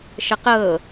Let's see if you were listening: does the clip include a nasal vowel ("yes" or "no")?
no